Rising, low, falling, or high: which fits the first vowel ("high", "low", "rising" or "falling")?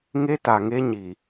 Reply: high